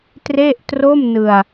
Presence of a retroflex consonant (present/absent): absent